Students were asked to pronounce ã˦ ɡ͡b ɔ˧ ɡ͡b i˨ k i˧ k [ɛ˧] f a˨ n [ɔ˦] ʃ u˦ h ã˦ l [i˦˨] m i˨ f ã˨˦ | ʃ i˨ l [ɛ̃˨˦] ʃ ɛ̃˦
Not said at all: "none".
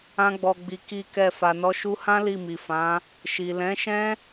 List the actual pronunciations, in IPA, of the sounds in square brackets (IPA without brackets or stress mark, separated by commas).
ɛ˧, ɔ˨˦, i˦˨, ɛ̃˨˦